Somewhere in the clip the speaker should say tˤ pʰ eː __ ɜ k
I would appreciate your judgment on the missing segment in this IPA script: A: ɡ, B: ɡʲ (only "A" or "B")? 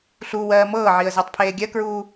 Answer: B